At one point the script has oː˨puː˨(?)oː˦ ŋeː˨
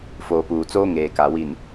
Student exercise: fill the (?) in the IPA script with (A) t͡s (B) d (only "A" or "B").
A